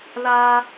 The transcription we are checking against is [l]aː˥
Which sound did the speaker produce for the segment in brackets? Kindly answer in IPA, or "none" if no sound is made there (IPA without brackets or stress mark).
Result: l